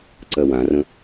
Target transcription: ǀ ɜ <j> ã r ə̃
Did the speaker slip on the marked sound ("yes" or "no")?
yes